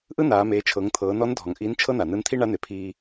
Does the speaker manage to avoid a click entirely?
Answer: yes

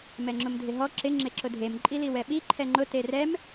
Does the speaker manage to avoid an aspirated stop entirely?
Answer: no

